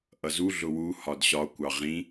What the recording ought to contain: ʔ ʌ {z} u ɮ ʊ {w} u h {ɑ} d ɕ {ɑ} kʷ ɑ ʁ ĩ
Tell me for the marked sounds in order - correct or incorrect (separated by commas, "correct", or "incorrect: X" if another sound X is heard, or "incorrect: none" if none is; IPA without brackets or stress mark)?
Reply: correct, correct, incorrect: ɒ, incorrect: ɒ